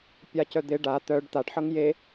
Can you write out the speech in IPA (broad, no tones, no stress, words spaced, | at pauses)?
pʲacœd̪ɪ ɖa t̪œɖ t̪aɖħɤŋ je